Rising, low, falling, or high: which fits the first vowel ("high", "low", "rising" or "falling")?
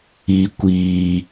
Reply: high